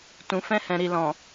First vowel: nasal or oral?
nasal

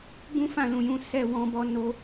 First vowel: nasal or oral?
nasal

